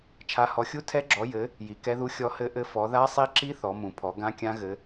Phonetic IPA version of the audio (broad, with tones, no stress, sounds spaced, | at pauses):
t͡ʃʰ a˨˦ h ɔ˨˦ xʲ u˦˥ tʰ ɛ˦˥ ɡ͡ǁ ɔ˨˦ j ɘ˨˦ | j i˨˦ k ɛ˦˥ ð u˦˥ xʲ ɔ˦˥ h ɘ˦˥ ʔ ɘ˦˥ f ɔ˨˦ ð a˦˥ sˤ i˦˥ ǁ i˦˥ θ ɔ˨˦ m ũ˨˦ pʰ ɔ˨˦ ɡ ã˦˥ kʲ ã˦˥ ɣ ɘ˨˦